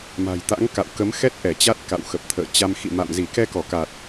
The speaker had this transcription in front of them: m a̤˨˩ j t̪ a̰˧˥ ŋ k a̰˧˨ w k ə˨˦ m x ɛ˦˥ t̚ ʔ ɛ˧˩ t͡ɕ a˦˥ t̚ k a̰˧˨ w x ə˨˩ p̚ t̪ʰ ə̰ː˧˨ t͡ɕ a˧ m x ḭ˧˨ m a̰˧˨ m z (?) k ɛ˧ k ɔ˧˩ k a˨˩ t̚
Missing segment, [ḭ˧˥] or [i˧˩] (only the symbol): i˧˩